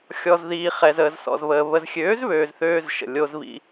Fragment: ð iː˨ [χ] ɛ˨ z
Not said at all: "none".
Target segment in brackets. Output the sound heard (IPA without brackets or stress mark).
χ